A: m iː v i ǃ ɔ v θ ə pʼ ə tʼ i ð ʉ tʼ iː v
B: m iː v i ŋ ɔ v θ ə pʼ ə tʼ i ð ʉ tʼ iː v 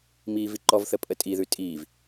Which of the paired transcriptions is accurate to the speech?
A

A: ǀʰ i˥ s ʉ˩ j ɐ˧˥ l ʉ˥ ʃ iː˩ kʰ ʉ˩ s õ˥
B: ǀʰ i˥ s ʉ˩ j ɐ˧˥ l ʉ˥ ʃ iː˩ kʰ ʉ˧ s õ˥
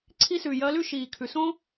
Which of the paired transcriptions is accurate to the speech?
A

